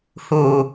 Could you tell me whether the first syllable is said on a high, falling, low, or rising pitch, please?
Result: low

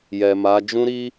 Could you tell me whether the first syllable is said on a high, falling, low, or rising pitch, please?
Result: low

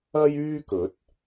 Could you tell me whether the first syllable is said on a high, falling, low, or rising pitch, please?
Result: high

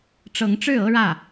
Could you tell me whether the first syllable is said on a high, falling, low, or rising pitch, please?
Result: rising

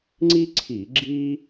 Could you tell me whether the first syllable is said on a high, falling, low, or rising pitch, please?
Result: high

